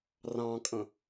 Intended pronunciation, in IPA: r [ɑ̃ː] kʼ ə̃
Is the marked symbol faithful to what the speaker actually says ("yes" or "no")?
no